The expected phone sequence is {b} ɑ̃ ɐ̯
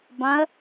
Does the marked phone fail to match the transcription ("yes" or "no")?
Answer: no